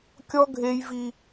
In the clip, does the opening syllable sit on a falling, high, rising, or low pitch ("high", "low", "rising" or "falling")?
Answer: high